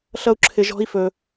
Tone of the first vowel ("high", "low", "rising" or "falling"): high